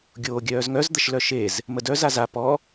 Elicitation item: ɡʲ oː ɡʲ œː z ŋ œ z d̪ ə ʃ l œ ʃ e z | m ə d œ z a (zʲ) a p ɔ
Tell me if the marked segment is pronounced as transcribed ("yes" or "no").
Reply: no